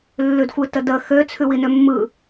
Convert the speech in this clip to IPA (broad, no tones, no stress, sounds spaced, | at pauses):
lː ʉ d xʷ ɯ t ə d ə x ø t͡sʰ ʉ w i n ø mː ɯ